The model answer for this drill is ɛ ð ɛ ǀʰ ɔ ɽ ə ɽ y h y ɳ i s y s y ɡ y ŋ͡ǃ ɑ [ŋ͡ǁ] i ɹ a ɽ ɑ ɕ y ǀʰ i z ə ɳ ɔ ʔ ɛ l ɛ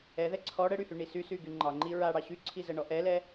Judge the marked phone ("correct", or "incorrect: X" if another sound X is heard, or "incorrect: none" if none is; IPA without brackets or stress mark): incorrect: ŋ͡ǃ